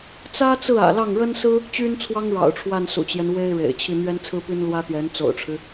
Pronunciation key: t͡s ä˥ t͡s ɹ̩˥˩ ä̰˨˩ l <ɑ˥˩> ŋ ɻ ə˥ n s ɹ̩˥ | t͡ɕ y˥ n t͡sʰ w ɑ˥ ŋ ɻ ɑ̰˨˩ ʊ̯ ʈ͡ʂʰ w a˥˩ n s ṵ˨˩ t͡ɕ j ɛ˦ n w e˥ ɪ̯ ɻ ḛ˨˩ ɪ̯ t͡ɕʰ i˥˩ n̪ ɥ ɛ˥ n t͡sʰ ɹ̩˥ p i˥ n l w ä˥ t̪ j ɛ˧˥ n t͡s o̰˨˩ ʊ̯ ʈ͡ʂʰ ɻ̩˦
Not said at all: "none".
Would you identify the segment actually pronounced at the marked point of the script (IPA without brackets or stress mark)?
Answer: ɑ˥˩